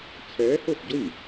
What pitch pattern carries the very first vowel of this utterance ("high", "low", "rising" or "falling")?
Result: rising